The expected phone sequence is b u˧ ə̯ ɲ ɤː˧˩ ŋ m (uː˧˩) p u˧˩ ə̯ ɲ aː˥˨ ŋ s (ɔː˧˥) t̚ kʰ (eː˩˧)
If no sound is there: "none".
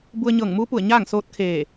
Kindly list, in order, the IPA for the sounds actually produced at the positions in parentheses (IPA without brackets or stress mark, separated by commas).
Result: uː˧˥, oː˧˥, eː˧˩